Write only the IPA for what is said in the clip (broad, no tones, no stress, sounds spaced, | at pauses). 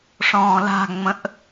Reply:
ʂ ɔ̃ː l a̤ ŋ͡m ə̃ ʔ